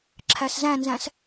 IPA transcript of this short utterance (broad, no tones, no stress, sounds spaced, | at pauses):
ǁʰ æ s z æ̃ n z æ̃ s